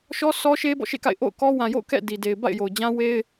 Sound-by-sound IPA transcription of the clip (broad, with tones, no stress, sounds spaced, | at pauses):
ʃ ɔ˦ sʰ ɔ˦ ʃ e˦ b ɔ̰˦˨ ʃ ḛ˦˨ k a̰˦˨ ɪ̯ ʔ o̰˦˨ ʊ̯ k ɔ˦ w ã˨ j o̰˦˨ ʊ̯ k ɛ̰˦˨ d i˨ d e˨ ɪ̯ b a̰˦˨ ɪ̯ j o˨ ʊ̯ d͡ʑ ã˦ w e˦ ɪ̯